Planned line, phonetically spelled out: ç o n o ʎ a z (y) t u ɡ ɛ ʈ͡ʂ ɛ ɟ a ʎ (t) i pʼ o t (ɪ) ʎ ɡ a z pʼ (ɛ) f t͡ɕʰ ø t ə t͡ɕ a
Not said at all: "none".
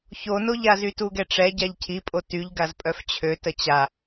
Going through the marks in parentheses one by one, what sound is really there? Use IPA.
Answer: y, cʰ, y, œ

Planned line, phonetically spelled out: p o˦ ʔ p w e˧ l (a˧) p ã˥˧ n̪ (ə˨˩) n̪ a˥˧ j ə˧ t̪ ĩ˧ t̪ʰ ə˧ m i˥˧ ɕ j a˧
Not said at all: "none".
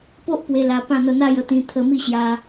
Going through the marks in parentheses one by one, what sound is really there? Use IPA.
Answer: a˧, ə˥˧

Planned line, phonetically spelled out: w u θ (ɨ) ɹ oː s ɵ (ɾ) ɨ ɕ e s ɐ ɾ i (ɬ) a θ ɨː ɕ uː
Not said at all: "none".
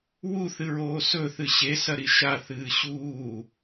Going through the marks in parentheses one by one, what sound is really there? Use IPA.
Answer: ɨ, θ, ʃ

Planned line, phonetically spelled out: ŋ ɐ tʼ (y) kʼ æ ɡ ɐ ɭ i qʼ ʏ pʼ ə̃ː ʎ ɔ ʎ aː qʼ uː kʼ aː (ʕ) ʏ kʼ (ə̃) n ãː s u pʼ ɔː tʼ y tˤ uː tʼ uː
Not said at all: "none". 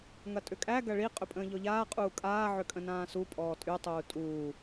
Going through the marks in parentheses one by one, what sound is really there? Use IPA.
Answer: ʏ, ʕ, ə̃

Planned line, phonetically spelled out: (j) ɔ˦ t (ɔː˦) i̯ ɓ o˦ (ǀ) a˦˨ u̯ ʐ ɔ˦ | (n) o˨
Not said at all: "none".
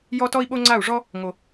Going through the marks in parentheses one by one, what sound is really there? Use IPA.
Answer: j, ɔ˦, ŋ͡ǀ, ŋ

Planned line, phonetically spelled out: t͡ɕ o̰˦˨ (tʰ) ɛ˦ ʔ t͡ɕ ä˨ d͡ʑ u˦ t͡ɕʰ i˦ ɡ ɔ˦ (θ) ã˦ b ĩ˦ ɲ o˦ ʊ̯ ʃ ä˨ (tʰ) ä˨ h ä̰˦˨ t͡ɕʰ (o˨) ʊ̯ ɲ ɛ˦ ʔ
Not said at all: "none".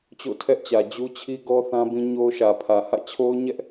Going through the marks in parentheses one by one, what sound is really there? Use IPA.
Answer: tʰ, θ, pʰ, o˦

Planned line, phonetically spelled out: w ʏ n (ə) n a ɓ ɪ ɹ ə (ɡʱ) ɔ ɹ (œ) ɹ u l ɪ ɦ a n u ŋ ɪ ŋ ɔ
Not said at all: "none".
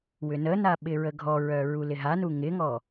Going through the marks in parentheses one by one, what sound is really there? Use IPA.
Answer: ə, ɡʱ, œ

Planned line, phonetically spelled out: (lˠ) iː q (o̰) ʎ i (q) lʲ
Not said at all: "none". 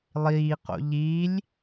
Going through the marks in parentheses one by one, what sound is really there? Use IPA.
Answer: lˠ, o̰, none

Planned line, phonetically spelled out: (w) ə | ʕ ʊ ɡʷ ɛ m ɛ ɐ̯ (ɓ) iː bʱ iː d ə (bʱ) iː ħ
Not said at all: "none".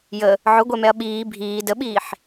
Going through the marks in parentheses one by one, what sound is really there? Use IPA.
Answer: j, ɓ, ɓ

